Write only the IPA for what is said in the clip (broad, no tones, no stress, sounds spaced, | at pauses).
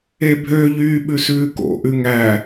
e bʱ ø ʎ yː ɓ ʉ s ʉː k o̰ ʔ ʉ ŋ æ